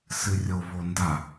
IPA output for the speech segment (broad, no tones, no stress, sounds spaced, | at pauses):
s ɨ rʲ o β o n d a